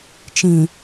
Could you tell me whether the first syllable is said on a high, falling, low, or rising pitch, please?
low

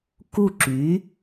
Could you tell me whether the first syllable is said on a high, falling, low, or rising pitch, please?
falling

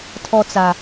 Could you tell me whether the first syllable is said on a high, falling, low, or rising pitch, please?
high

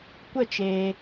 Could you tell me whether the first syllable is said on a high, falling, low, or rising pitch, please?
falling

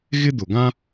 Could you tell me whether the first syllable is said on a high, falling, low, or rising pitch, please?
high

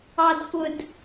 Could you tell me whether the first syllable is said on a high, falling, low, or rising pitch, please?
low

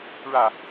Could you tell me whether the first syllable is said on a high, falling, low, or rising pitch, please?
falling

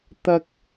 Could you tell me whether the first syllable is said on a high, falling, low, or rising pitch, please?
high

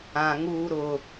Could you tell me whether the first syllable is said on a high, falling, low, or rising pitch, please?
low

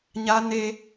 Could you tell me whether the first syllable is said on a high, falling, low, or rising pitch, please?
high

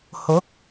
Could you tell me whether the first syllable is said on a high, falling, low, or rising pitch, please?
rising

